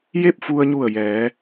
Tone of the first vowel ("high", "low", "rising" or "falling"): falling